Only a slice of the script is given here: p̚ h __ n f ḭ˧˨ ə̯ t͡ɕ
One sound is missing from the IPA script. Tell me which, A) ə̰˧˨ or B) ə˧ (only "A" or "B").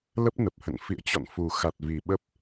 A